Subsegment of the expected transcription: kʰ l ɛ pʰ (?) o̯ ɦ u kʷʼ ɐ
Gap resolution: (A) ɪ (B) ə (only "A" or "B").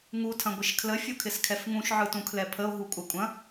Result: B